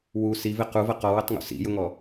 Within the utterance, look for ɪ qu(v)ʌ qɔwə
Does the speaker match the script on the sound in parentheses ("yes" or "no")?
yes